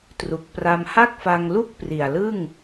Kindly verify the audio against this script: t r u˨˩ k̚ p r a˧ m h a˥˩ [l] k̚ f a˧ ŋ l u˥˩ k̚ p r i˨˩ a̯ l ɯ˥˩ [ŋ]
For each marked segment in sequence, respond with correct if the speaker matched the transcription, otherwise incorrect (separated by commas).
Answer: incorrect, correct